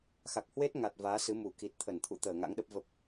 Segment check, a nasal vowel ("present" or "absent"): absent